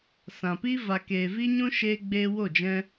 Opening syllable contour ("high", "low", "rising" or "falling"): low